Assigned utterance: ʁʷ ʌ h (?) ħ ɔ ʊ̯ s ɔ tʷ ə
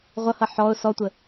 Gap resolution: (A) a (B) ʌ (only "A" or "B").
B